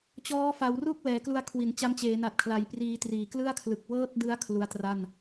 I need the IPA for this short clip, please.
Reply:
t͡ɕ ɔː˦˥ f a˩˦ w r u˥˩ k̚ w ɛː˩˦ k l u˧ a̯ kʰ w i˩˦ n t͡ɕ a˦˥ m t͡ɕ eː˩˦ n a˨˩ t̚ kʰ l a˩˦ j p r iː˧ t r iː˨˩ k l ɯ˥˩ a̯ kʰ l ɯ˨˩ k̚ w ɤː˥˩ t̚ d ɯ˦˥ a̯ kʰ l u˦˥ a̯ t r a˥˩ n

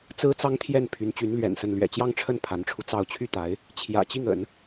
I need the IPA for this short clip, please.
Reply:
t͡s ɹ̩˥ t͡s ɑ˥ ŋ t̪ʰ j ɛ˥˩ n pʰ y˧˥ n t͡ɕ y˧˥ n l ɥ ɛ̰˨˩ n s ə˥˩ n l ɥ ɛ̰˨˩ t͡ɕ j ɑ˥˧ ŋ ʈ͡ʂʰ ə˥˩ n pʰ a˧˥ n ʈ͡ʂʰ u˧ t͡s ɑ˥˧ ʊ̯ t͡ɕʰ y˥˩ t̪ a˧˥ ɪ̯ | t͡ɕʰ j ä̰˨˩ t͡ɕ i˥˩ ŋ ə̰˨˩˦ n

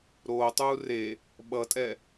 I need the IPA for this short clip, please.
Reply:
ɾ oː tˤ uː r e | ɓ ʌ tʼ ɛ

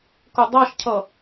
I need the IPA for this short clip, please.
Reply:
k ʊ dˤ ʌ ʃ cʰ ʌ

